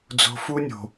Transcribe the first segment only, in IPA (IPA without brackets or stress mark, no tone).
d͡z